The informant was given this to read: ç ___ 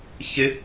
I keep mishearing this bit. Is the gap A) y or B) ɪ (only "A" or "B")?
B